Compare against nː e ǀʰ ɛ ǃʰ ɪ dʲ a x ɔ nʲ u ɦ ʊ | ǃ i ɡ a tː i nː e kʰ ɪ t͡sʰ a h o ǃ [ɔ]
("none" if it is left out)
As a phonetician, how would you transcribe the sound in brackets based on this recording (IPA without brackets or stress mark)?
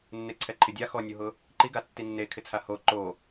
o